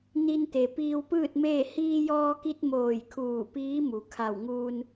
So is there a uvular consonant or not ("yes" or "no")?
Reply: no